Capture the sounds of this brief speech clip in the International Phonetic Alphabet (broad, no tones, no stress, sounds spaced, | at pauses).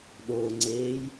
ɗ o ŋ͡ǀ eː j